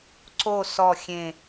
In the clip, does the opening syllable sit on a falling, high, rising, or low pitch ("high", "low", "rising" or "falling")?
falling